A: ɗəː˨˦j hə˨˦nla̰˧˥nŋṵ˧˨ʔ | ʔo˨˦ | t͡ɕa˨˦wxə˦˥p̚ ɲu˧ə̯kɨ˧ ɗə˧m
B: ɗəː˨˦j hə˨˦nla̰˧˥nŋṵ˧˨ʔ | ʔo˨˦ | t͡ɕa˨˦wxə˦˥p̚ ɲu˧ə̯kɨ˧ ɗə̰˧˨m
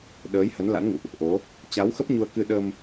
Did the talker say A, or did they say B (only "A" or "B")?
A